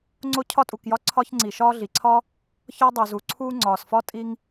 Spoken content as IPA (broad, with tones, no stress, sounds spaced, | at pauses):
ŋ͡ǀ o˦ cʰ ɒ˦ tʼ u˩ k j ɒ˦ ǀʰ ɒ˦ ç ŋ͡ǀ i˩ ʃ ɒː˦ ɮ i˩ ǀʰ ɒ˥ | ç ɒ˦ dˤ o˩ z u˩ ǀʰ uː˦ ŋ͡ǀ ɒː˩ s f ɒ˥ tʼ i˦ ŋ